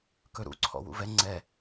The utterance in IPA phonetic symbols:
k ɵ ɾ ṵ ǀʰ ɔ̰ w ṵ v ɛ ŋ͡ǀ ɛ

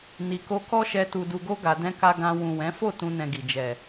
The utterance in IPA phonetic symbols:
n i˨ k o˧ k ɔ˦ ʃ ɛ˧ t u˧ d u˧ ɡ o˦ ɡ a˧ d ɛ̃˧ k a˧ ɡ ã˧ w ũ˨ w ɛ̃˨˦ f o˦˨ t ũ˧ n ɛ̃˧ ɡ i˨ d͡ʒ ɛ˨

